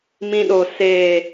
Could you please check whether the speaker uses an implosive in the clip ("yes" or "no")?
yes